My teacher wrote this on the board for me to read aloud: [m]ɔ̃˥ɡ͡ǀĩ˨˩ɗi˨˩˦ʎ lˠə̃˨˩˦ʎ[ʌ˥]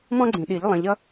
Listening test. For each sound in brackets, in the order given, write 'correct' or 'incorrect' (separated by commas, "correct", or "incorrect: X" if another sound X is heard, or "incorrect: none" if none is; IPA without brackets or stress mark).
correct, correct